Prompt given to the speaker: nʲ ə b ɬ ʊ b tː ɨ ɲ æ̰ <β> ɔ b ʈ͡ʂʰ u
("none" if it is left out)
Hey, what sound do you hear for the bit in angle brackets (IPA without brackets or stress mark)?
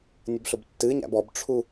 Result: b